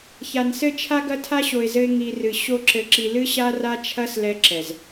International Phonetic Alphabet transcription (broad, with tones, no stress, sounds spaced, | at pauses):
ç a˨ n s ɘ˦˨ t͡ʃʰ a˦ ɡ ɐ˦ tʰ a˦ ɕ o˨ ɪ̯ z ɘ˧ ɪ̯ ŋ i˧ r ɨ˨ ɕ o˦ ǁ ɘ˧ ǁ i˧ l ɨ˦ ɕ a˦ r a˦ t͡ʃʰ ɐ˦ s l ɛ˧ ǁ ɛ˨ z